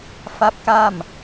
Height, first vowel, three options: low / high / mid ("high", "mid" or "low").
low